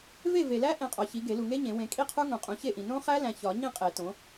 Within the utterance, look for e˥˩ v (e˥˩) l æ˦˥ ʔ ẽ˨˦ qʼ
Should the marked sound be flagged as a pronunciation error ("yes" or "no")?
yes